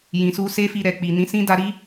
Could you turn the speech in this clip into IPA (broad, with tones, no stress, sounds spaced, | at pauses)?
j ĩ˧ s u˦ s e˦ f i˧ ɾ ɛ˨ k͡p i˨ n ĩ˨˦ s ĩ˦ d a˧ ɾ i˦